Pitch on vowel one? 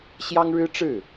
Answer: high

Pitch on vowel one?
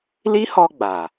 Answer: high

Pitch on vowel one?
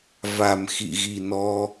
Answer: low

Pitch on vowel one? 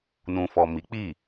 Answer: low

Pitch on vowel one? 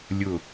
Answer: falling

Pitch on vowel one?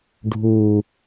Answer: low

